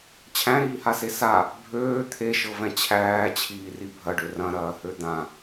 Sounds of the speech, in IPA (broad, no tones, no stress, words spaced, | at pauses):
t͡ɕʰæ̃ɾiːhase sa | bʱøː t̪ʰeʃɤvɛ̃ t͡ɕʰæːt͡ɕʰiːri bʱɐɖø rɐ̃ɾɐːhø d̪ã